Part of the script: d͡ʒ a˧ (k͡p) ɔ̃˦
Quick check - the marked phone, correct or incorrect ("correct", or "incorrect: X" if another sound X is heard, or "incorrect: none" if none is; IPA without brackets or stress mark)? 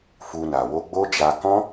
incorrect: k